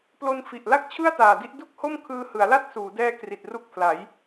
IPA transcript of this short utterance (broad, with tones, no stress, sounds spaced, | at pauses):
p l o˧ n f i˨˩ ʔ l a˥˩ k̚ t͡ɕʰ ɯ˥˩ a̯ t aː˨˩ d i˥˩ ʔ d u˥˩ k̚ h o˥˩ m kʰ ɯː˧ h ɯ˩˦ a̯ l a˥˩ t̚ s uː˩˦ d ɛː˦˥ k r i˨˩ t̚ r u˦˥ k̚ pʰ l a˩˦ j